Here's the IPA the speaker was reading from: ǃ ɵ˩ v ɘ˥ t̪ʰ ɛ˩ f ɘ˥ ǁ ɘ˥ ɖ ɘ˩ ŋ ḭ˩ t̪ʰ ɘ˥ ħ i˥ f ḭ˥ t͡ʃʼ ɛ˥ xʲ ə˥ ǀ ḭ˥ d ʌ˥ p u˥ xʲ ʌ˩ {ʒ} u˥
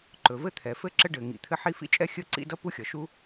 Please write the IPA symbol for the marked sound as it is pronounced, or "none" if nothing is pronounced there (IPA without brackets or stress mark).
ʃ